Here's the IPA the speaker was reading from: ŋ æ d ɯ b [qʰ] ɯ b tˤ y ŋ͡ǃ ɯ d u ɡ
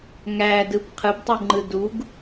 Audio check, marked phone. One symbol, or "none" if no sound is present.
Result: qʰ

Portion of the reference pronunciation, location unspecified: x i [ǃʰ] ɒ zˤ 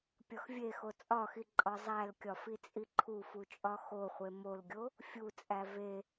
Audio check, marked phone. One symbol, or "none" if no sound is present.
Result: ǃʼ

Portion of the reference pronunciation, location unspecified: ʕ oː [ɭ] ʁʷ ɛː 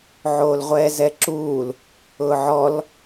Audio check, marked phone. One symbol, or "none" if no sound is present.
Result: l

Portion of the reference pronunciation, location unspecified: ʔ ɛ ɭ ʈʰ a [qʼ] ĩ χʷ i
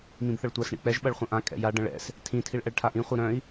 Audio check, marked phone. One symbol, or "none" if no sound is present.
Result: ʔ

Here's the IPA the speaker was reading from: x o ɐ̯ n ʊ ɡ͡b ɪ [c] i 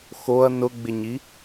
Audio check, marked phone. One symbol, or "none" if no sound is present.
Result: ɲ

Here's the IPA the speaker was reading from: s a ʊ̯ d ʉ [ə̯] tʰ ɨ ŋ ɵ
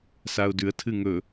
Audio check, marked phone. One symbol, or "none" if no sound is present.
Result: ə̯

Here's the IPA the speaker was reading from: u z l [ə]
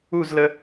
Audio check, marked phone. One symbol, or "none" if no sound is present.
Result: ə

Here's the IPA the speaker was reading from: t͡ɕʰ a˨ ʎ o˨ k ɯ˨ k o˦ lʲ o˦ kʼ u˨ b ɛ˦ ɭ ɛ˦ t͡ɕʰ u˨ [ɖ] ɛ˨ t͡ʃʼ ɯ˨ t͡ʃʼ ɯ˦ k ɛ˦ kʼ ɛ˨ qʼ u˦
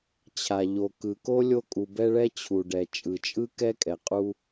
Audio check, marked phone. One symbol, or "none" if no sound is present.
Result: ɖ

